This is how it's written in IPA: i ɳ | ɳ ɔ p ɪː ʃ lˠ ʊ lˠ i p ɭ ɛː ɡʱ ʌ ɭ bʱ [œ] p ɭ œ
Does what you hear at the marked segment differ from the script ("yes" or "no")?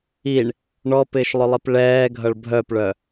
no